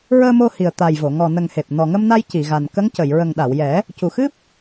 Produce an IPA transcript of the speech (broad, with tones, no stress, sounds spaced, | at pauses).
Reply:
ɹ əː˧ m o˧ h i˨˩ ə̯ t̪ a˨˩ j v o˨˩˨ ŋ ɔ˨˩ n ə˨˩ ŋ h e˨˩ p̚ n ɔ˨˩ ŋ ə˧ m n a˧ j c i˨˩˨ ɣ a˨˩ n k ə˧˥ ŋ c ə˨˩˨ j ɹ ə˨˩ ŋ ɗ a˨˩˨ w j ɛ˨˩˦ | c u˨˩ x ɨ˦˥ p̚